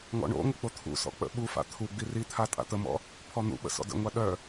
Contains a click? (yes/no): no